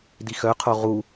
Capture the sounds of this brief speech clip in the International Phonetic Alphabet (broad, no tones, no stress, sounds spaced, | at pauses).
d i x œ qʰ o ʁ u